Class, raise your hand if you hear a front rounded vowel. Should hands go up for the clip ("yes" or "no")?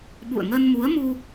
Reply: no